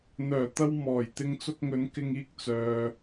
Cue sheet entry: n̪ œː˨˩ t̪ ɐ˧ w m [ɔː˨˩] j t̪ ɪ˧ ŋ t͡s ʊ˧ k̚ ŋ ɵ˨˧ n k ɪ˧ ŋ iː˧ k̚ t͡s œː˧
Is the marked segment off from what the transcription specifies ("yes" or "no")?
no